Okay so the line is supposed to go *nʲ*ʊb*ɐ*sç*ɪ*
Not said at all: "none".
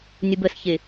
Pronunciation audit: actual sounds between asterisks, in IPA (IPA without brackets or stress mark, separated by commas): nʲ, ə, ɪ